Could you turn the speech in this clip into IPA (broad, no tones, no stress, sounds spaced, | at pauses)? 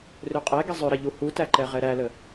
r ø qʼ ɛ ɡ i zˤ ø ɾ ɐ ʎ u h u t æ ǃ ɛ ʁ ɛ ɾ æ l ə